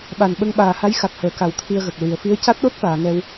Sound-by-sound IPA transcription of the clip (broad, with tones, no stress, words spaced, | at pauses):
ɓa˨˩n ɓə˧ŋɓaː˨˩ha˧˥j xa˨˩k̚həː˨˩ka˨˩˦w t̪ʰi˧ə̯ɣə˨˩k̚ ɹi˨˩˨ə̯fi˧˥ə̯ ca˦˥t̚ɗo˦˥t̚faː˨˩˨ ŋɛ˧w